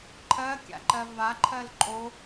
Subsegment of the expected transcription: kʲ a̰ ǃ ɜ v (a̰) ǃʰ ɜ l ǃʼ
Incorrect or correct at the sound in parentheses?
incorrect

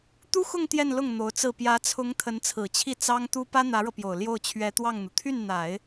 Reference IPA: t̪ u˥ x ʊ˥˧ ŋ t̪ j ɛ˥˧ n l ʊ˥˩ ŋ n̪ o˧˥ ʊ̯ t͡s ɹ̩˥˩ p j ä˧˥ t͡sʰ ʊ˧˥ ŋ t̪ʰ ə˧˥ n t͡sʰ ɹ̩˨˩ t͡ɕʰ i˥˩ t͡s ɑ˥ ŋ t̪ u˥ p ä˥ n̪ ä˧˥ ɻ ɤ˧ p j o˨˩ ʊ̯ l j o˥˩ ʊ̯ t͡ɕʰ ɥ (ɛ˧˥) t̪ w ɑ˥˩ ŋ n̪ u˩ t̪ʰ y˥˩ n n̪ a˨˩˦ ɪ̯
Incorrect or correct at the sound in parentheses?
correct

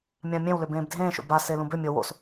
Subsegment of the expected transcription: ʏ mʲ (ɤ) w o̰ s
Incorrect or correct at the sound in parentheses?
correct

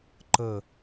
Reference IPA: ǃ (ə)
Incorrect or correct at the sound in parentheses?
correct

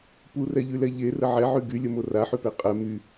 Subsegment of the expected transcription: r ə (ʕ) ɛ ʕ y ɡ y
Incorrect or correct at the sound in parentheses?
correct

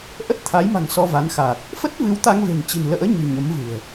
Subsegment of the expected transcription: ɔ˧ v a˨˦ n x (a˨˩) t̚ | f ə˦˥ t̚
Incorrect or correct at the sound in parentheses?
correct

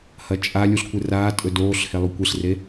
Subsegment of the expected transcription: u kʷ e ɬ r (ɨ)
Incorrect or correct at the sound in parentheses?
incorrect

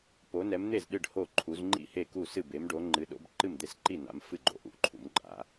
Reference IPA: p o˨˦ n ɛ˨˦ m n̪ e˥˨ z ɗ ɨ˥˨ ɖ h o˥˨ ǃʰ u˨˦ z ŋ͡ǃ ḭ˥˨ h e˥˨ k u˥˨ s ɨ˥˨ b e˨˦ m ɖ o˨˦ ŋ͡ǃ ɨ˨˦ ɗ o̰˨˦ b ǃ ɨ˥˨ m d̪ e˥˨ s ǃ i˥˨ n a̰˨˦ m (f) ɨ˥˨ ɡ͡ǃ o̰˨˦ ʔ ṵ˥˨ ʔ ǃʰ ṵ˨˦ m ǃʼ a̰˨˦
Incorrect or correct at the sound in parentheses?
correct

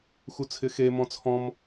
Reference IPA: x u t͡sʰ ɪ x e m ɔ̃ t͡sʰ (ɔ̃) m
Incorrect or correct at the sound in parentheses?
correct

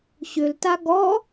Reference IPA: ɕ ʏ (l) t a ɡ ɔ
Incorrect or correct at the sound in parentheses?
correct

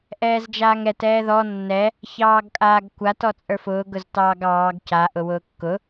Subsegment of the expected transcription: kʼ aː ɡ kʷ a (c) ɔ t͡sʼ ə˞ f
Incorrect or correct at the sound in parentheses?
incorrect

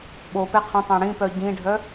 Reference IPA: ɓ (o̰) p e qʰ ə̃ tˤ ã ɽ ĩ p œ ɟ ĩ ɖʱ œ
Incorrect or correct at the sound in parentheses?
incorrect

